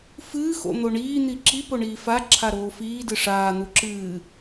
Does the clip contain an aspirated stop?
yes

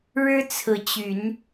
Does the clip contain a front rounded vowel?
yes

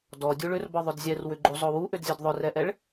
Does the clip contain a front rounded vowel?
yes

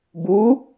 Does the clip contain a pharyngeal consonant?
no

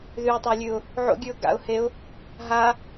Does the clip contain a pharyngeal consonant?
yes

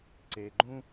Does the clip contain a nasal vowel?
yes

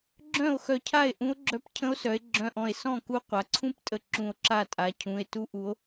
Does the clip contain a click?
yes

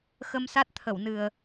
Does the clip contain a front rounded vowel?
no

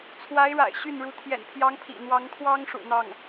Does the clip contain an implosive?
no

